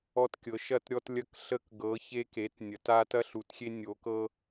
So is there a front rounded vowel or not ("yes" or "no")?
no